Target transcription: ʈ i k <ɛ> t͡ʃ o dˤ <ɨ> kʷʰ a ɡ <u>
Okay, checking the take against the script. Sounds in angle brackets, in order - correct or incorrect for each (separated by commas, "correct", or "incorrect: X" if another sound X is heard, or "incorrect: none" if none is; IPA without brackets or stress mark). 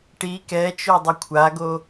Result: correct, correct, incorrect: o